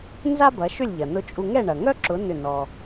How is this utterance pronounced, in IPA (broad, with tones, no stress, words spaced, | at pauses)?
nza˥bɐ˩˥ʃʏ˥˩lʲʎɐ˩ nʊ˧t͡ʃʼu˧ ŋɛ˥˩ɳɐ˩ŋœ˥ǁʊ˩˥ nʏ˥˩nɔ˧